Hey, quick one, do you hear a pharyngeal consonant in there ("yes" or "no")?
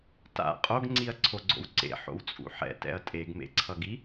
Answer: yes